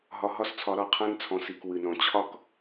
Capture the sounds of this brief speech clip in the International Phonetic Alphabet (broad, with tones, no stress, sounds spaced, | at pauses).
ɦ ɒ˧ ɦ ɒ˦ s t͡sʰ ɒ˧ ɾ ɒ˦˨ qʰ ã˦ n t͡sʰ ɔ̃˨ s i˨ k w ɨ˨ n ɔ̃˨ t͡ɕʰ ɒ˦ k